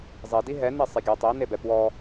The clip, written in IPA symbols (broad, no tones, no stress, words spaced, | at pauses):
zˤi diɦɛ nisˤeɡʲo tˤi nebɛpwɔ